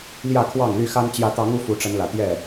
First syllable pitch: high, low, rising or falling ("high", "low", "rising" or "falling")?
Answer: falling